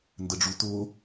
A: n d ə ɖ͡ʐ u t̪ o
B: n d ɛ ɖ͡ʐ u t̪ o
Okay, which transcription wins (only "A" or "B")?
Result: A